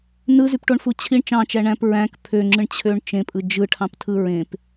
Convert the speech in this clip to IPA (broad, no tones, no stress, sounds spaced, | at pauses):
n ɯ z y p ʈ o ɳ f u t͡ɕʰ i ɳ t͡ʃ ɑ̃ t͡ʃ æ ɳ æ̃ p ɹ æ̃ k pʰ ø ŋ͡ǁ ɯ ɳ t͡ɕʰ ø ɳ t͡ʃ ẽ pʼ ɯ d͡ʒ ɯ ʈʰ ɑ̃ p tʰ ɯ ɹ ẽ p